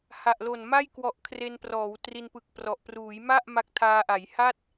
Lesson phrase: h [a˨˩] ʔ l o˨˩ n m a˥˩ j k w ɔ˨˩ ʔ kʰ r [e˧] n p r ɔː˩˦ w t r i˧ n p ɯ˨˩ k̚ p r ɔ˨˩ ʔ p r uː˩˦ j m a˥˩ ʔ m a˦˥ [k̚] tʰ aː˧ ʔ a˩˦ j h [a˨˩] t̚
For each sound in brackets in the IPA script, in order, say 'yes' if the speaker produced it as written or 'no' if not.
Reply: yes, yes, yes, no

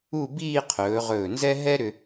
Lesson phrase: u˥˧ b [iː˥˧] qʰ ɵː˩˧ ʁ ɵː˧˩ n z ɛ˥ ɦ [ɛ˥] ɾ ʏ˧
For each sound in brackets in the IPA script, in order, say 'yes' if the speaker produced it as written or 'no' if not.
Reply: yes, yes

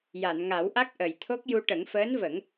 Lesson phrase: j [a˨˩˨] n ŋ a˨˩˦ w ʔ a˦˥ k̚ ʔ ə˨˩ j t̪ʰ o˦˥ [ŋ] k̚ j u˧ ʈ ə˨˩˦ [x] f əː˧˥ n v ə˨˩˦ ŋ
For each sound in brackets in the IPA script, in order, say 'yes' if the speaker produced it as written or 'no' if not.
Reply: yes, no, no

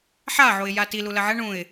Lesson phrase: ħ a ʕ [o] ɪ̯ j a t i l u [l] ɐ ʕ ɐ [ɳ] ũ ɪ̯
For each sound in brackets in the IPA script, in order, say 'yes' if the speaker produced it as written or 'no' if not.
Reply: yes, yes, yes

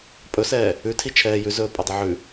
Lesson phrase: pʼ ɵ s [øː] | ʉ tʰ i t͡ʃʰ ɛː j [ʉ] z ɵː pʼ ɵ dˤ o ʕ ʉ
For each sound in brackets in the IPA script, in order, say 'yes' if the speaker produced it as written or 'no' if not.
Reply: no, yes

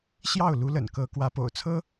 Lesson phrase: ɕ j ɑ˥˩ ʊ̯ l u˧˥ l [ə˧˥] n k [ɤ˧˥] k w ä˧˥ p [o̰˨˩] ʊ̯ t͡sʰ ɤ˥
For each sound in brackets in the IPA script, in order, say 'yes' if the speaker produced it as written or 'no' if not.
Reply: no, yes, yes

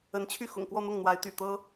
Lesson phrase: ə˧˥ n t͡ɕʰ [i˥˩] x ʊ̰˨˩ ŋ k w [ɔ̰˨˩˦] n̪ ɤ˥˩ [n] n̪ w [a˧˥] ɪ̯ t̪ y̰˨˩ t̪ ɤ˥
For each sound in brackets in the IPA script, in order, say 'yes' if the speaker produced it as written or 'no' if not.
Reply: no, no, no, yes

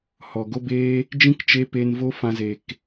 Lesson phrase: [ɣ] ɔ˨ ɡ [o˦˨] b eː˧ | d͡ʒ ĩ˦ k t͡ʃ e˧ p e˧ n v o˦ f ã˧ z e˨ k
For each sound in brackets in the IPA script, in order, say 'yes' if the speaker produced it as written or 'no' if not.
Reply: no, no

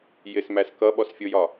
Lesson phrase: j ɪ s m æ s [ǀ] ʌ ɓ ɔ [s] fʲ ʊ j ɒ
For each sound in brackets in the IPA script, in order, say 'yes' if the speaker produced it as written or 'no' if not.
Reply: no, yes

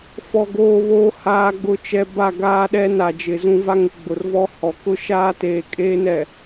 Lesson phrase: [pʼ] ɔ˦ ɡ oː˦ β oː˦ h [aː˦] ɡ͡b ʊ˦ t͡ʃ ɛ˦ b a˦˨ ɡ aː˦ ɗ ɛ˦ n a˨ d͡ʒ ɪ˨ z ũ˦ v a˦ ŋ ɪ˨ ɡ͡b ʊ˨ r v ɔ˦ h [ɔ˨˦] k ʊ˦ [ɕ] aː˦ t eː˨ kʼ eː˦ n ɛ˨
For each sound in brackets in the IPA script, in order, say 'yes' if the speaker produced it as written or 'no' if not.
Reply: no, yes, no, no

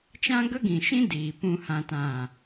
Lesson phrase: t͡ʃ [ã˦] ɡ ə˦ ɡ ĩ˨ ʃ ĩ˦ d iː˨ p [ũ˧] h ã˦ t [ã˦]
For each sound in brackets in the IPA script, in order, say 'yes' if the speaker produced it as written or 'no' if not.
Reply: yes, no, no

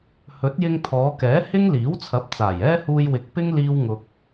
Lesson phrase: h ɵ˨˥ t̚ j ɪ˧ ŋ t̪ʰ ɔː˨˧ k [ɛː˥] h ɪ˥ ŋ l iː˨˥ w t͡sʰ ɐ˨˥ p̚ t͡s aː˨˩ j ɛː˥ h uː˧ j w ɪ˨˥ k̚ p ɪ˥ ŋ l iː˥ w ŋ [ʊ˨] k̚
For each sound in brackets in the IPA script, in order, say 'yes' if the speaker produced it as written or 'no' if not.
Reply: no, no

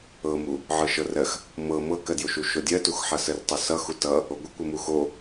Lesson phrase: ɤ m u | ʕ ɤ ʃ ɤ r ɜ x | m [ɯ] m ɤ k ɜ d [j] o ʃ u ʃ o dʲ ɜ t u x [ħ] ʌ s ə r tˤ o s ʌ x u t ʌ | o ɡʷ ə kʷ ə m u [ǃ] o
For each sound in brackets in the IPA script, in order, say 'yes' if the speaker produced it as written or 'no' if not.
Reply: no, yes, yes, no

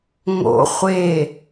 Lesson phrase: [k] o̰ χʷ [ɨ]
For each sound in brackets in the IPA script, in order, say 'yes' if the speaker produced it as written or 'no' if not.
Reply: no, no

